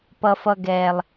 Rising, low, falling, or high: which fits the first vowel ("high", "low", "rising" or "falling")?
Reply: high